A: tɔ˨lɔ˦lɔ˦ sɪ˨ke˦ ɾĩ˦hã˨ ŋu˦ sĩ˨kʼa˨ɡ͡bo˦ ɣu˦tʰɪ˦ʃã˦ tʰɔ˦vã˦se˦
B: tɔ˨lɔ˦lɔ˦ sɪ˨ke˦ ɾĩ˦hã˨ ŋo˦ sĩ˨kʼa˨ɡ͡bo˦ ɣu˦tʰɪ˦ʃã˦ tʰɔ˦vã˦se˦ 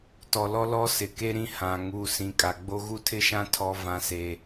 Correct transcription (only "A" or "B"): A